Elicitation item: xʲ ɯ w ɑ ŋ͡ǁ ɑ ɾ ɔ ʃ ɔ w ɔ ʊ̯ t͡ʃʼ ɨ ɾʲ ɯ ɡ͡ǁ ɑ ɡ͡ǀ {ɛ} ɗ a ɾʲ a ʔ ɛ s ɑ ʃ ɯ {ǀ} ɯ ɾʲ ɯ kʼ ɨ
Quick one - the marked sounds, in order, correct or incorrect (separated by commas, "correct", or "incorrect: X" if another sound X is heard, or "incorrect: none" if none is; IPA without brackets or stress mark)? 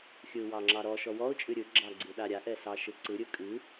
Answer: incorrect: ɨ, correct